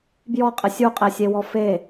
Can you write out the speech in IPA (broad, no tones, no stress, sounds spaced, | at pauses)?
b j ɔ qʼ ɪ sʲ u qʼ e sʲ e w ɔ f e